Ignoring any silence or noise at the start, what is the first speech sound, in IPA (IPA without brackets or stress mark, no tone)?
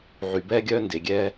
ʕ